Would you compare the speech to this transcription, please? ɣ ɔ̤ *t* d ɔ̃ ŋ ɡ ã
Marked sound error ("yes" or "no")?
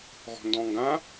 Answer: yes